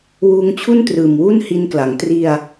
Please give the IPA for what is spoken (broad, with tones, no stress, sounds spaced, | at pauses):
w uː˧ ŋ t͡ɕʰ u˥˩ n t r ɯː˨˩ m w u˥˩ n h i˧ n k l a˩˦ ŋ t r i˧ a̯